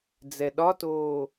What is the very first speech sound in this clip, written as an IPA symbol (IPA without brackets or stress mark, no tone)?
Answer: d͡z